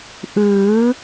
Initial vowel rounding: unrounded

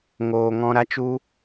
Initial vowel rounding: rounded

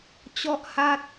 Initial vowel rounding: rounded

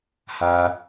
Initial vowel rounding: unrounded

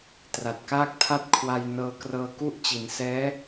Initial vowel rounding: unrounded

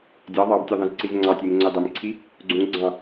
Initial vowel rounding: unrounded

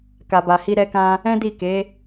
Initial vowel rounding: unrounded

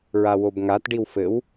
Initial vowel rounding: unrounded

